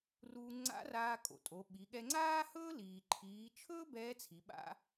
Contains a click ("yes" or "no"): yes